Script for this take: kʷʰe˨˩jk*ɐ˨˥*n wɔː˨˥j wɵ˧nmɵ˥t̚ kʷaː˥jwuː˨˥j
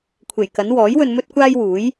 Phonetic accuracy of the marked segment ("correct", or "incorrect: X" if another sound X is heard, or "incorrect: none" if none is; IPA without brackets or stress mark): correct